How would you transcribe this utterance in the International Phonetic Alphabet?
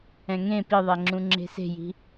ɛ̃ ŋ ẽ p i ðˤ ɛ ŋ͡ǁ ũ ŋ͡ǁ e̤ s e̤ j i̤

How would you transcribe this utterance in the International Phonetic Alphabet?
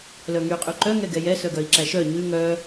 l œ ŋ y qʼ y ǃ œ ŋ ɛ ɡ ɛ j ɛ s œ ɡ œ i̯ ǁ æ ʃ œ ɲ ʉ ŋ œ

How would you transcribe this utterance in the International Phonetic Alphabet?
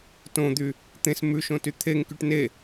t õ d̪ y | t̪ ẽ s m ʉ ʃ õ t y t̪ʰ e ŋ k y ʈ n e

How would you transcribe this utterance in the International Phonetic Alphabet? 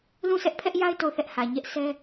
l ũ˦˨ s ɛ˦ ʔ pʰ ɛ˦ ʔ j a˦ ɪ̯ t o˦˨ ʊ̯ θ ɛ˦ ʔ h ä˨ ɲ ɛ˦ ʔ sʰ ɛ˦

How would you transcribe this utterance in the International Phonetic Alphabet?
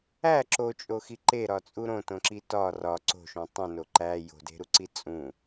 æ ǁ o t͡ʃʼ o x i ǃ e ɾ ɒ t͡sʼ u ɾ õ t õ ǁ i t ɒ r ɒ ǀ o̤ ʃ õ tˤ ũ n o ǃ æ j o̤ d e̤ ɾ u ǀ i t͡sʼ ũ

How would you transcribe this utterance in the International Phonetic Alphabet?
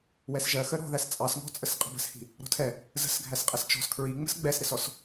w ɛ s ʒ ɜ x ə ɾ ɔ̤ ð æ s t͡sʼ ɑ s ŋ ɔ̤ t͡sʼ ə s qʼ ə̤ b ə̤ s h i̤ | ɾ ɔ̤ tʰ ɛ | z ə̤ s ɡʱ æ s qʼ ɛ s t͡ʃ ɔ̤ s kʰ ɹ i ŋ͡m ə̤ s ɡ͡b ɛ s ɾ ɪ s ɔ s

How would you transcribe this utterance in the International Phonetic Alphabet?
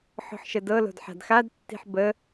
ħ ɔ̤ ħ ʃ ə d ɤ l o̤ d ħ a̤ d x a d tː i̤ ħ b ə

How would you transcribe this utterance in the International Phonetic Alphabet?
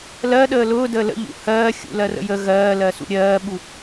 l ɜ ɗ əː l ʊː d əː l ə̰ ʎ ṵ h ɜː xʲ ṵ l ɜ r ə̰ j ə ɣ ɜː l ɜ s ṵ ɾʲ ɜː ɓ u

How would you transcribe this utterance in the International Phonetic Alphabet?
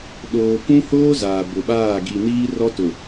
ɗ oː˨ k ũ˦ h oː˦ z aː˨ b ʊ˨ ɓ aː˦˨ ɡ i˨ n iː˦ r ɔ˦ t ʊ˨

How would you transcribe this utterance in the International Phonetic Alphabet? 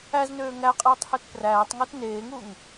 æ z n øː ŋ æ qʼ eː tˤ h ø t p r æː tˤ ŋ o t n eː ŋ u ŋ

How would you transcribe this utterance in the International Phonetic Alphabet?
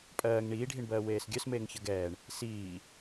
pʼ ɜː ŋ ɳ iː ɖʱ i ɳ b ɜː w eː s ɡʲ œ s m eː ŋ ç ə ɡ ɛː ɳ | s iː

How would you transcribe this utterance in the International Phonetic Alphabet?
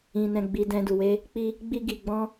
ĩ˨ n ɛ̃˧ ɡ͡b i˧ d ɛ̃˧ d u˨ w e˧ | k͡p i˧ | ɡ͡b i˧ ɡ i˨ ɡ͡b ɔ̃˧

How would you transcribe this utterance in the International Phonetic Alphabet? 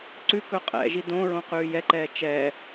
ǀ ʉ k ɵ qʼ ɛ̰ ʒ i d õ ɹ õ q ʉː j ɛ ǃ ɛː t͡ʃ ɛː

